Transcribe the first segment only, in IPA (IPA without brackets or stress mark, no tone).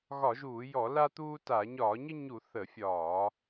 ɣ